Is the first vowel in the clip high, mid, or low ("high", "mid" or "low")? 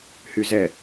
high